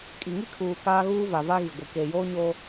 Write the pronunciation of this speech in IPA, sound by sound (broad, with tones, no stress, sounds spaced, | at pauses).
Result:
kʼ i˨ ŋ i˦ kʰ uː˨ k aː˦ ɣ uː˦ v a˨ v a˦ ɣ i˨ ɡʷ i˨ k e˨ j oː˦ ɲ oː˦